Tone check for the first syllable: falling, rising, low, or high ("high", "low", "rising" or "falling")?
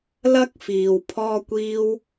high